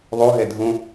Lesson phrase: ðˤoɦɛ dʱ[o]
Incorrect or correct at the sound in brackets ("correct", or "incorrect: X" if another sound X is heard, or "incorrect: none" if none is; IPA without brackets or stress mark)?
incorrect: õ